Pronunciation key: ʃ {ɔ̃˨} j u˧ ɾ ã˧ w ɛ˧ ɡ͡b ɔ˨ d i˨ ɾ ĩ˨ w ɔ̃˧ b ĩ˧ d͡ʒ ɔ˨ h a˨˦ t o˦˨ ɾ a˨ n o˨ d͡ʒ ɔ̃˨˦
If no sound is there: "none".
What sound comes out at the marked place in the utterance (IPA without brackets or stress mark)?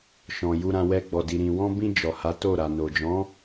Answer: ɔ̃˨